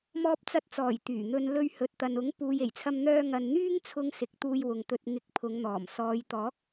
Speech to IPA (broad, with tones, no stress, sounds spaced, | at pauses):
m ɔː˧ p̚ t͡s ɐ˧ t̚ t͡s ɔː˨˩ j t̪ yː˨˩ n̪ ɵ˧ n l ɵ˧ ɥ h ɵ˨ t̚ t̪ ɐ˨ n ʊ˨˥ ŋ p uː˨ j e˨˩ j t͡sʰ ɐ˧ m n̪ œː˧ ŋ ɐ˨ n n̪ yː˥ ŋ t͡sʰ ʊ˧ ŋ s ɪ˨˥ k̚ t̪ uː˧ j w ʊ˨ ŋ t̪ ɵ˧ t̚ ŋ ɪ˨˥ k̚ pʰ ʊ˨˧ ŋ n̪ ɔː˨˩ m s ɔː˨˧ j t̪ ɔː˨˥ k̚